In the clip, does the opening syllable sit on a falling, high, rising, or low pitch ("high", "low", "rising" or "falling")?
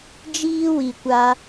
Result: high